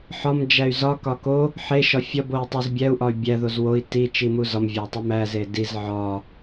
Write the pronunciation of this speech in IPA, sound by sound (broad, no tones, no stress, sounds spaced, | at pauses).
ħ ɒ m d͡ʒ æ y̯ z ɒ k ɒ k o | ħ e ʃ ɒ fʲ ɒ b o i̯ tˤ o z bʲ æ u̯ ʔ ɒ y̯ bʲ æ ð o z w o i̯ t i t͡ʃ i m u z ɒ m vʲ æ tˤ e m æ z e d i z ʕ ɒ